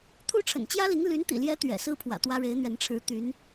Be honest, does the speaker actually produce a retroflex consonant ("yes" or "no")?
yes